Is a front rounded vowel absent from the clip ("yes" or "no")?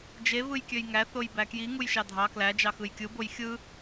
no